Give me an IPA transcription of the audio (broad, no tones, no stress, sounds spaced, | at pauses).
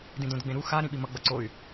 d ĩ d õ d ɡ͡b ẽ ɾ u x a ɾ ĩ ɓ i m ʌ ɡ͡b ʌ ǀ o y̯